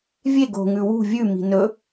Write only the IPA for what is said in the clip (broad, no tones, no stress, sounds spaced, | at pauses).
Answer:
vʲ e ɡ o̤ ŋ ʉ w ṳ vʲ ʉ m i̤ n ɵ